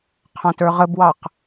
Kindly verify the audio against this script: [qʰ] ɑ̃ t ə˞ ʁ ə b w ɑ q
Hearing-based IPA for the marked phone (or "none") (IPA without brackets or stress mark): qʰ